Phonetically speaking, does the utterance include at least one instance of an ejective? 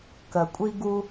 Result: yes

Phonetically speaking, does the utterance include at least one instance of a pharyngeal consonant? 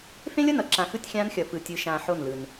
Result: yes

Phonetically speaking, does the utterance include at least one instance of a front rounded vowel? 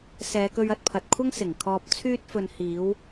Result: yes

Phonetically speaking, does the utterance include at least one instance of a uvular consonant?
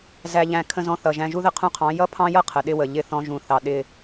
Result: yes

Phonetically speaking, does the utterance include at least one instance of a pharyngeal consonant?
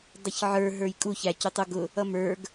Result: yes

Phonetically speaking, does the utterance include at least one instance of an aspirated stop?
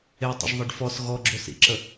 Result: no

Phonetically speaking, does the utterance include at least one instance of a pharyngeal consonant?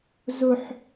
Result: yes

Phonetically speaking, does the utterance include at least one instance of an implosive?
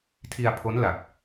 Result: no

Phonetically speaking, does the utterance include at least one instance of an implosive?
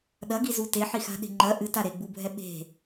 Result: yes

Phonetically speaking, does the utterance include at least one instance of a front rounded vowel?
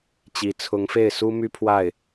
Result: yes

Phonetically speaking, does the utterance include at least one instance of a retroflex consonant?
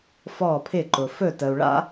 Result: yes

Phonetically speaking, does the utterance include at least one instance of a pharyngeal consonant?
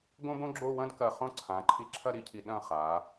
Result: no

